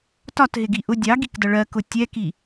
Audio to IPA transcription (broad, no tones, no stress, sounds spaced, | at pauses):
t ɒ t ɦ ɪ ɡ i ʔ ʊ dʲ ɑ ɡ i k d ʌ ɭ ɜ k ʊ tʲ ɛ k i